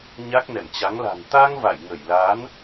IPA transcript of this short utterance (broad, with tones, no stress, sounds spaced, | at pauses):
ɲ a˦˥ k̚ n ɛ̰˧˨ m t͡ɕ a˨˦ ŋ l a̤˨˩ n t̪ a˧ ŋ v a̰˧˨ j ŋ ə˧˩ j l a˨˦ n